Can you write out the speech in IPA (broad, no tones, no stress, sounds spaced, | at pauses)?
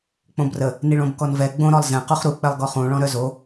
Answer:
k͡p õ b r ə | n i ɭ õ b k ɔ n v ɛ ɡ͡b õ ɾ ɔ lˠ z ɛ̃ q u χ ɾ u k͡p ɛ lˠ ɡ ɔ χ ũ ɭ ɔ̃ ɾ œ z o